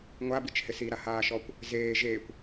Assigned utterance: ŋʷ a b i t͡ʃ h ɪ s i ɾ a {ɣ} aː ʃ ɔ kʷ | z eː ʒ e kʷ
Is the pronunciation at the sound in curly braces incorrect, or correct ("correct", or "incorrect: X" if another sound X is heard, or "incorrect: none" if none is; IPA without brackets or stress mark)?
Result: incorrect: h